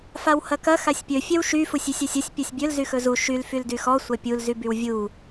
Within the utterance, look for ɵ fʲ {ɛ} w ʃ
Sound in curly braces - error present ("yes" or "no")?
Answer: no